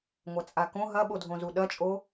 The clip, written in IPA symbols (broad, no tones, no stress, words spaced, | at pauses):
ŋʷɐt͡sʼakõ ɦɐɓodʱõzu ɗɐt͡ʃʼo